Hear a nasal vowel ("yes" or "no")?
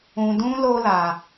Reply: yes